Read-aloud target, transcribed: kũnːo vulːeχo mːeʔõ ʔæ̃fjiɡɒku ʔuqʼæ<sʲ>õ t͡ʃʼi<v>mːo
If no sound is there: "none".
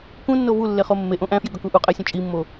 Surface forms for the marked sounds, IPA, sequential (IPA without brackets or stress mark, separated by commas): sʲ, none